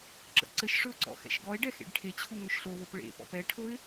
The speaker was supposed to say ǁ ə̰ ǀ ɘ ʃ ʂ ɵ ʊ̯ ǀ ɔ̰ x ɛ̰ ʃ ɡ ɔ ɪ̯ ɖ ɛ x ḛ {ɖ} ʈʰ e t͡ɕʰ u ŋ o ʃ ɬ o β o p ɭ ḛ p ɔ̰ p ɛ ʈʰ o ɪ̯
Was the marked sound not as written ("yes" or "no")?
no